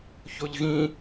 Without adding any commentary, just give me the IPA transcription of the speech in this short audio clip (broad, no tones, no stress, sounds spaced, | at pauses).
ç o ʎ ɣ ĩ